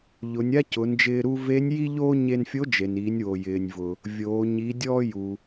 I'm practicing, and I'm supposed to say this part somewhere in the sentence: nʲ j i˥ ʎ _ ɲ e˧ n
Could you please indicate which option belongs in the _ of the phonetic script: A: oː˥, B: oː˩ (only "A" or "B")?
A